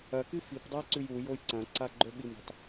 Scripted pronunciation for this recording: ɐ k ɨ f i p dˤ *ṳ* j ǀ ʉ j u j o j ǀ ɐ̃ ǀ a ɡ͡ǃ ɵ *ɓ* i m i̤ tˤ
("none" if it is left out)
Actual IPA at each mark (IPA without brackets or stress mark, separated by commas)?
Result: u, ɓ